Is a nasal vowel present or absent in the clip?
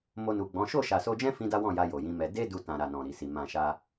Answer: present